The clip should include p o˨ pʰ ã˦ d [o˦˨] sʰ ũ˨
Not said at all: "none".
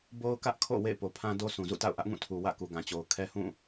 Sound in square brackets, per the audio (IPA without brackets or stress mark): o˦